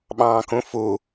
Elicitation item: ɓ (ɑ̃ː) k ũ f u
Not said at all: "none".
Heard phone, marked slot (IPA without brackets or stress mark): ɑ̃ː